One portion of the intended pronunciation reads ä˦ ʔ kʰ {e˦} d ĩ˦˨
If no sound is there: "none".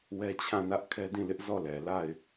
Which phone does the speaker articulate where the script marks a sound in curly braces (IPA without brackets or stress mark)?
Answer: ɛ˦